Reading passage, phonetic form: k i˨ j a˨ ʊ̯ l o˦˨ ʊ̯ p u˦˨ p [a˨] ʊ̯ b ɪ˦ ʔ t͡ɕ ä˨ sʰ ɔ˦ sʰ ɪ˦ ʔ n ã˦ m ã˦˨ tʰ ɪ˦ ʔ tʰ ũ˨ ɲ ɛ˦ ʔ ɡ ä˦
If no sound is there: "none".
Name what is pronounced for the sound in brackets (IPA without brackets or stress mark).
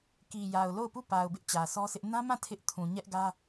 a˨